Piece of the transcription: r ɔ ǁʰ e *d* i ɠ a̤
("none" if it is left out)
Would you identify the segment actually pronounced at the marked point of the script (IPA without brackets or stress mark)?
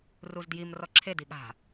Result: d